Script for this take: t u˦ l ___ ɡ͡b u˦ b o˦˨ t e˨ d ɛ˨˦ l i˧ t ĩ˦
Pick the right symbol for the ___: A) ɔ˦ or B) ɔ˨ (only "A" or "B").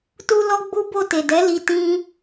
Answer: A